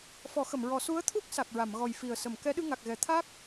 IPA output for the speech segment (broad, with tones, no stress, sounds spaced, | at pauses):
f ɔ˨˩˦ x ə˨˩˨ m ɹ ɔ˨˩˦ s u˧˥ ə̯ t̪ʰ u˦˥ k̚ s a˨˩ k̚ ɹ a˨˩˨ m ɣ ɔ˨˩ j f i˨˩ ə̯ s ə˨˩˨ m k ɛ˧˥ ɗ ɨ˧ ŋ a˨˩ k̚ ɣ ɛ˨˩˨ t̪ʰ a˦˥ k̚